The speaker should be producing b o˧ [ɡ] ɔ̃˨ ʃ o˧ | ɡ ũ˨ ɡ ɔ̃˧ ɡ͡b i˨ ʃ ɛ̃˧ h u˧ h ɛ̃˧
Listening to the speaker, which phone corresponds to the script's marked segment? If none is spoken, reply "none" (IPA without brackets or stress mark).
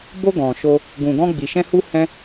ɡ